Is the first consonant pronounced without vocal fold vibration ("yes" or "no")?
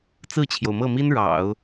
yes